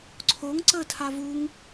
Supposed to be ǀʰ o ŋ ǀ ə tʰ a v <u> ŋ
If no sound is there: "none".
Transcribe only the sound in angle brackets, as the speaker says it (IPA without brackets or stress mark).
u